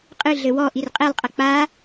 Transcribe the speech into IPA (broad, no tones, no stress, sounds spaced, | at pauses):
qʼ ɨ ɮ ɘ w ɔ ʔ i r qʼ e lˠ qʼ ɐ k͡p a